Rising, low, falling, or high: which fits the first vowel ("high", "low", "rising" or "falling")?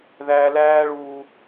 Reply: low